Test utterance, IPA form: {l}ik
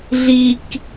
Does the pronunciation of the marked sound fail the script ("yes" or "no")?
yes